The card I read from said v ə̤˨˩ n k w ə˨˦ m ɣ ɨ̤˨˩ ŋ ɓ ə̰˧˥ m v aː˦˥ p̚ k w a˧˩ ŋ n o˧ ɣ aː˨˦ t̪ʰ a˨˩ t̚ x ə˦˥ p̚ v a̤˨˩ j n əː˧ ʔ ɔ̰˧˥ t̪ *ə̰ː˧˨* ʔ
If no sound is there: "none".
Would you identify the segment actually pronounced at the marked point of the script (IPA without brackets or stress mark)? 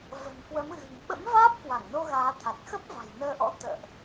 ə̰ː˧˨